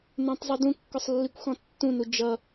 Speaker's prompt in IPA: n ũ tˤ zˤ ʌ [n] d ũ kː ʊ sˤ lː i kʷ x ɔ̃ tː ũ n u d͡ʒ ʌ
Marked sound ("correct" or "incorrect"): incorrect